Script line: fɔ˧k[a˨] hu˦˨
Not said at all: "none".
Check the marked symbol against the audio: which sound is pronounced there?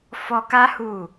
a˦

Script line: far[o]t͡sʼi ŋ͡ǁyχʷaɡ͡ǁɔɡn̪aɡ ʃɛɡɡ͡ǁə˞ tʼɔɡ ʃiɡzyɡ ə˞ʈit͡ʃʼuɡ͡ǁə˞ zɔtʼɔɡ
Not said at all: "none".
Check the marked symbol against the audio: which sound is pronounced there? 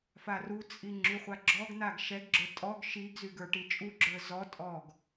u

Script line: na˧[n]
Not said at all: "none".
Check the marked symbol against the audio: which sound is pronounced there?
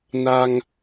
ŋ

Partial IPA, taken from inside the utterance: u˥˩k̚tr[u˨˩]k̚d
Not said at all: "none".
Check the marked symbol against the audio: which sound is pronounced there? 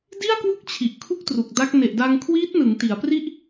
u˨˩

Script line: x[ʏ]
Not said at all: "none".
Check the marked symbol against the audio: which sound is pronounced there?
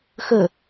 ə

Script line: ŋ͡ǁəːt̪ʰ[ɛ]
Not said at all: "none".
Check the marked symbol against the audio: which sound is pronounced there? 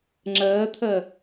ə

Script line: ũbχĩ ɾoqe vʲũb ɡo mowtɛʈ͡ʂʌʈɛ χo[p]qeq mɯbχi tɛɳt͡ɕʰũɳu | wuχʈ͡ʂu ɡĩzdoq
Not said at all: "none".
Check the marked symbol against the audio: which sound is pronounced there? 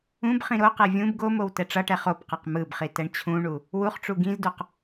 p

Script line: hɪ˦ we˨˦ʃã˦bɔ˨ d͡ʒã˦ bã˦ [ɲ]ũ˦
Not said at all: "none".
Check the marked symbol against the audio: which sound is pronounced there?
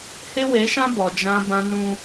n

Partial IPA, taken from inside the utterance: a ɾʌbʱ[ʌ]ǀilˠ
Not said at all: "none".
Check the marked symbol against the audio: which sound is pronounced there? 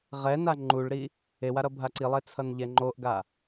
a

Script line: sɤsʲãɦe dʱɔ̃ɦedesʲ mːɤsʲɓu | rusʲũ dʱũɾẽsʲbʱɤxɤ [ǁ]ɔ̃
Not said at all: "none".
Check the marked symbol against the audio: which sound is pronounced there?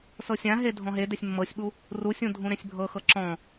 ǁ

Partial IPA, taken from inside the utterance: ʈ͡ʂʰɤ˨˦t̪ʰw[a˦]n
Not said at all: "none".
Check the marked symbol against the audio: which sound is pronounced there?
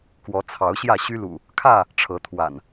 a̰˨˩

